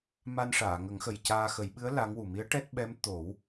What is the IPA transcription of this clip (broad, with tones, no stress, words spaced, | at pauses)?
ma˧nʂaː˨˩˨ŋə˨˩˦ŋ xə˨˩jcaː˧ xə˨˩˦jɓɨ˧˥ə̯ la˧˥ŋwu˨˩ mi˧˥ə̯ʈɛ˦˥t̚ɓɛ˧˥m t̪o˨˩˦w